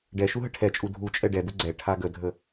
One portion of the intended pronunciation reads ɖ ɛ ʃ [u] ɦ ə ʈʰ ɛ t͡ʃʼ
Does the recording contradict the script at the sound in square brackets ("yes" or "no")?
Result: no